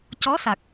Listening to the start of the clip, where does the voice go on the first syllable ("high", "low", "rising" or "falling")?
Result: rising